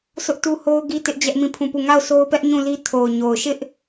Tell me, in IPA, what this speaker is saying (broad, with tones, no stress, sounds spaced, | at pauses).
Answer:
sʰ ʊ˦ ʔ t u˦ h o˦ ʊ̯ ɡ i˦ t ɪ˦ ʔ d͡ʑ ɛ˦ ʔ m ĩ˦˨ pʰ ũ˦˨ p u˦˨ ŋ a˦˨ ʊ̯ s o˦ ʊ̯ p ɛ˦ ʔ ɲ ũ˦˨ l i˦ tʰ o˨ ʊ̯ ɲ o˨ ʊ̯ ʃ ɪ˦ ʔ